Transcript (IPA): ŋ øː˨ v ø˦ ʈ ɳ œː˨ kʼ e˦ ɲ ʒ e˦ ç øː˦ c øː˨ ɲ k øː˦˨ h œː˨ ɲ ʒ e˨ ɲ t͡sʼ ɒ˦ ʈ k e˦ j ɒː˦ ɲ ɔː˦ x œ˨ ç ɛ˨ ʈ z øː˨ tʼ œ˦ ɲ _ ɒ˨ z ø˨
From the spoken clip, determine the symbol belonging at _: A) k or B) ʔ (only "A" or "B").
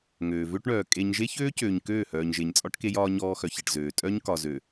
A